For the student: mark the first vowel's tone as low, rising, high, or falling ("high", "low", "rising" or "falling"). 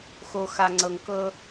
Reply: low